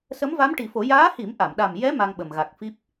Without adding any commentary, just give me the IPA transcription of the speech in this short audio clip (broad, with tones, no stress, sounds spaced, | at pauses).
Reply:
s ə˧˥ m v a˧˥ m ʈ i˨˩˦ f o˨˩˦ j aː˧˥ h i˨˩˦ m ʔ a˨˩˨ m ɗ a˨˩ m j ɛ˧˥ m a˧ ŋ ɓ ə˨˩ m ɣ a˨˩ k̚ f i˦˥ p̚